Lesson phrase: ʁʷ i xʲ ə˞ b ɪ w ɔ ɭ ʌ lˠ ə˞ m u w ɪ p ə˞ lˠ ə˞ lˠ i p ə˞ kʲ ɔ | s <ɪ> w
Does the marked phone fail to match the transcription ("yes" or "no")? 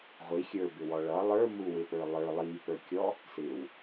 no